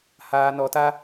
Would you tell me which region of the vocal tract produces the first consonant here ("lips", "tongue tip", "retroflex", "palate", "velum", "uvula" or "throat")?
throat